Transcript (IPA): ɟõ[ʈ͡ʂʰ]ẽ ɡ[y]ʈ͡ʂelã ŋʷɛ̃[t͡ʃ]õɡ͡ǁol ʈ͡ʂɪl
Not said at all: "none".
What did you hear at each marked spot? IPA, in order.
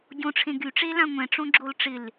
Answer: ʈ͡ʂʰ, y, ʈ͡ʂ

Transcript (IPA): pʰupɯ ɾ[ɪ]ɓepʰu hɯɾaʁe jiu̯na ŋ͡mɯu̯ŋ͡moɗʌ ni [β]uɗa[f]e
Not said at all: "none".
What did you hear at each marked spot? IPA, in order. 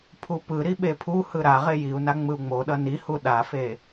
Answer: i, h, f

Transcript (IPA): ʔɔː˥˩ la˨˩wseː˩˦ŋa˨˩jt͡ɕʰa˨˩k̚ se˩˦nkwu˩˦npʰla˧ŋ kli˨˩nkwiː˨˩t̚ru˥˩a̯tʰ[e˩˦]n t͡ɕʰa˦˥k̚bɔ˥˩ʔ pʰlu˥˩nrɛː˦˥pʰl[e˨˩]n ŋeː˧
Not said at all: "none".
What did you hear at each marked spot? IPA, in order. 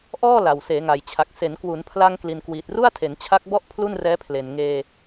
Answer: e˩˦, e˨˩

